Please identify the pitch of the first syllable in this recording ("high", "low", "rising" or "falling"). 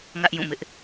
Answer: high